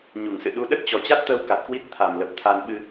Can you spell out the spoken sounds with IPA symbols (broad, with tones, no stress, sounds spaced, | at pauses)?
ɲ u˧˩ ŋ s ɨ̰˧˨ ɗ u˨˦ ɗ ə˦˥ t̚ t͡ɕ ɔ˨˩ t͡ɕ a˦˥ t̚ t̪ əː˧ w k a˨˩ t̚ k w i˦˥ t̚ t̪ʰ a˨˩ m l ə˨˩ p̚ t̪ʰ aː˧ n ɓ ɨ˧